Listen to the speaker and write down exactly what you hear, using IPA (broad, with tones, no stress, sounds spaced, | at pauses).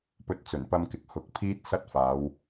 p ɵ˧ t̚ t͡s ɵ˨˩ n p ɐ˧ m k ɪ˨ k̚ h ʊ˨˥ k̚ pʰ iː˥ t̚ s ɐ˥ t̚ f aː˨˧ w